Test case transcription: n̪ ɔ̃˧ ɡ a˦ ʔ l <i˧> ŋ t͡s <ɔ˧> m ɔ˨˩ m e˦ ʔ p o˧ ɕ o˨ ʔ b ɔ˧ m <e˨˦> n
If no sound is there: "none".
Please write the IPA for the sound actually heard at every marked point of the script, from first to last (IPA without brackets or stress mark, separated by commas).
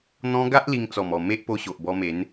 i˧, ɔ˨˩, e˨˦